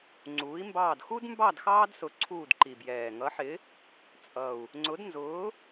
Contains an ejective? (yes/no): yes